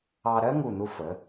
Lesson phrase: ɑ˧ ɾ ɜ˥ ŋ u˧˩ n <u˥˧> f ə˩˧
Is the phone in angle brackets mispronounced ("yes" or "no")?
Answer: yes